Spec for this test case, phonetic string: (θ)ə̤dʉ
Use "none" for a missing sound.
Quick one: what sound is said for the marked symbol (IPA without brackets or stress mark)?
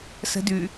s